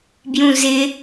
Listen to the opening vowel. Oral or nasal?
nasal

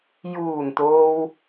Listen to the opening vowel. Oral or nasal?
oral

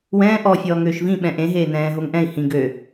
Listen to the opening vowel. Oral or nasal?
nasal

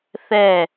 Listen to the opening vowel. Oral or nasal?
oral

